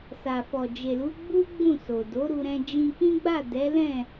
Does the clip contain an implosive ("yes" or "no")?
no